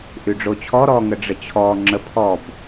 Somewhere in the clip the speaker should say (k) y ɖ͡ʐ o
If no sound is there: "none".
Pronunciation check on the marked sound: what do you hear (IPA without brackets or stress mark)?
ʔ